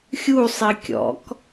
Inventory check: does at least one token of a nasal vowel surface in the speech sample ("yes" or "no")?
no